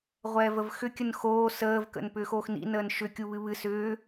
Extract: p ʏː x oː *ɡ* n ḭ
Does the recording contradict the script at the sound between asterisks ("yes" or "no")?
yes